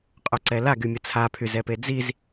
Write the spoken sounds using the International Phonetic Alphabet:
qʼœǀɛlaɡy mʲət͡sʰapʰyz ɛped͡ziz

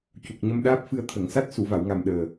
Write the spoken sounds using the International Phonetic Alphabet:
cu˨˩k̚ɲə˧mɗaː˦˥p̚fɨ˧ə̯ t̪ʰə˨˩˨ŋsa˦˥t̚ su˨˩˨va˨˩˨wŋa˨˩m ɗəː˨˩

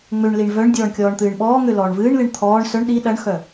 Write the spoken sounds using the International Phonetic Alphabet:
ŋ͡møɳliɳ vœɳdʲɔːɳ kʲɔːɳt̪ɨːɳɓɔːŋø lɔːɳvɨːɳlɨɳ t̪ʰɔːɳ sœɳ ɗi ɗɐɳxœ

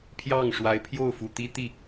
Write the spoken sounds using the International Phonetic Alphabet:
pʰjɑ˥˩ŋʂwa˧˥ɪ̯ pʰjo˥˩ʊ̯fu˨˩t̪i˥ t̪i˥˩

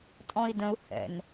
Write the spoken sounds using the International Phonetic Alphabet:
tʼɔ̃i̯də̃u̯ hɛ̰n

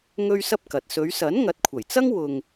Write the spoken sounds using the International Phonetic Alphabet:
ŋɵ˥ɥsɐ˥p̚kɐ˨t̚ sɵ˨˧ɥsɐ˨˥n ŋɐ˨˥t̚kʷʰɐ˨˩jt͡sɐ˥ŋ wʊ˧ŋ

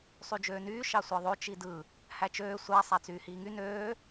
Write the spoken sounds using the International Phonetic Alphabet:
sˤyd͡ʒøːnyː ʃɑsʷɑðˤo t͡ʃidɯ | hæt͡ʃøː sʷæ sˤæt͡syːhiːŋy nøː

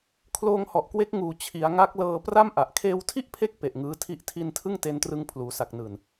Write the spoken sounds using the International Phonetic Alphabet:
kʰloː˧ŋhɔ˨˩ʔkwe˦˥k̚ ŋuː˨˩t͡ɕʰi˩˦a̯ ŋa˦˥k̚lɤː˧ pra˥˩mʔa˨˩ʔ kʰeː˧wtʰi˥˩ʔpʰe˦˥k̚ pe˨˩ʔ ŋɯː˦˥tʰi˥˩ʔtʰi˥˩n tʰɯ˥˩ŋte˧ntrɯ˧ŋ pʰluː˩˦sa˨˩k̚nɯː˨˩n

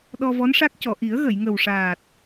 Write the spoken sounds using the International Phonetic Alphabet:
ɗɔ˧vɔ˧˥nʂa˦˥k̚cɔ˨˩˨ ʔi˨˩˦ə̯ɣə˨˩˨jŋə˨˩wʂaː˨˩t̚

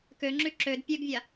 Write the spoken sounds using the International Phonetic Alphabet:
køŋ͡ǁy ǁød pʲøɡvʲa

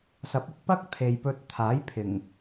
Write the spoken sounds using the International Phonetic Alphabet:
sɐ˨˥p̚ʊ˨˥k̚ pɐ˥k̚ t̪ʰe˨jpɵ˧t̚ t̪ʰaː˨˥jpʰɪ˨˩ŋ

